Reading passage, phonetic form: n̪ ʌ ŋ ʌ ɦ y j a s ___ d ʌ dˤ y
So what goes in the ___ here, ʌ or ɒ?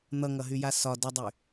ɒ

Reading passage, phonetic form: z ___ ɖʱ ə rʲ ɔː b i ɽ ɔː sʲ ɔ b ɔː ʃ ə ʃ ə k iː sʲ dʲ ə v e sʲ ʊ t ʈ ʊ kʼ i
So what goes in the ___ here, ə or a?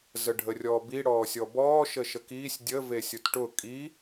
ə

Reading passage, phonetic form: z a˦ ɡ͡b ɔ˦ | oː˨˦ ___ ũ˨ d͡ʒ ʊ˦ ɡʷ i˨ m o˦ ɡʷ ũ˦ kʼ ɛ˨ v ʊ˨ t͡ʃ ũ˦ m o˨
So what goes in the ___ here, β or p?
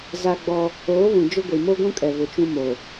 β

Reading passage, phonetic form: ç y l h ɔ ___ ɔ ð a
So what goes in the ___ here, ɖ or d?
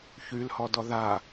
d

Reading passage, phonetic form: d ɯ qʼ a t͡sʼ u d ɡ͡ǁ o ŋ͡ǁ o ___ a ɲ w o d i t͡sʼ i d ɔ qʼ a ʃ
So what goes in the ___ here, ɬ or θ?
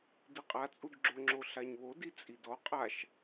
ɬ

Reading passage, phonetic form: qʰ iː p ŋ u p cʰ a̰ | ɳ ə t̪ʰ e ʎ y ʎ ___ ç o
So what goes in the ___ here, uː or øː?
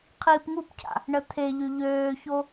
øː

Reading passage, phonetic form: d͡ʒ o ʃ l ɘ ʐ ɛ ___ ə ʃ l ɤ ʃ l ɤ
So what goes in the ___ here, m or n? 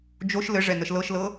n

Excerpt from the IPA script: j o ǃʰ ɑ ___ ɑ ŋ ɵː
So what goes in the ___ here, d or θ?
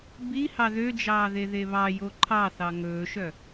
θ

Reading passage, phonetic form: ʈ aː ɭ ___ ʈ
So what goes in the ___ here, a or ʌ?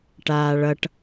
ʌ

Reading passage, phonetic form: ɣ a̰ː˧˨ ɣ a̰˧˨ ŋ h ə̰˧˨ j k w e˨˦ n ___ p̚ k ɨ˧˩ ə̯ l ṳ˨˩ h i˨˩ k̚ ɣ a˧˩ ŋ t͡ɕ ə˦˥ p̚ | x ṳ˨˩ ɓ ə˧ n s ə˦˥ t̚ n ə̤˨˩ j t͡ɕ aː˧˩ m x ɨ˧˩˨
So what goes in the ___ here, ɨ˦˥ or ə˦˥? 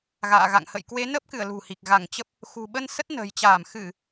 ə˦˥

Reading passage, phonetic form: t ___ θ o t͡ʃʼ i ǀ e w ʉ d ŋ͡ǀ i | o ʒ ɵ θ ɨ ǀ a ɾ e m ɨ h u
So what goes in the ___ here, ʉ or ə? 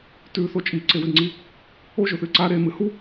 ʉ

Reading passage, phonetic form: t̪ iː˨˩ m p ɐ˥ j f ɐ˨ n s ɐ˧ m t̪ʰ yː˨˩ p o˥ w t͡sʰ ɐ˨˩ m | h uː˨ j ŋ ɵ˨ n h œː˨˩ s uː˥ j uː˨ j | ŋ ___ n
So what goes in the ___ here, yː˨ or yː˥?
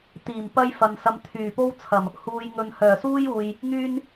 yː˥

